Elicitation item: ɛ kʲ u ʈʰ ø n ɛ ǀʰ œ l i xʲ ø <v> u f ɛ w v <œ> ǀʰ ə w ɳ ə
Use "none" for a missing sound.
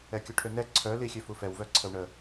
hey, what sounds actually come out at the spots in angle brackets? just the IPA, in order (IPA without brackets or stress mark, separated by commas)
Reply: f, œ